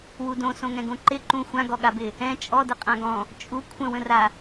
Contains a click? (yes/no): yes